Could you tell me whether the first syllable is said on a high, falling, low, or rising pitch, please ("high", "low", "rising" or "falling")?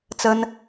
high